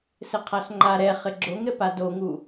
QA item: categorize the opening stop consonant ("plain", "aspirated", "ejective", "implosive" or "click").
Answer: aspirated